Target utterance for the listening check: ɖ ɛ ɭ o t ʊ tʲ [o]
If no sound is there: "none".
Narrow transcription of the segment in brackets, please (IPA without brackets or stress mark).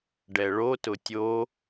o